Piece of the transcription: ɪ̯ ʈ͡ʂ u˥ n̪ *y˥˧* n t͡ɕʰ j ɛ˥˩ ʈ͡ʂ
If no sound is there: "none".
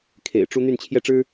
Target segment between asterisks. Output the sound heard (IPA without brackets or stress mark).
y˥˧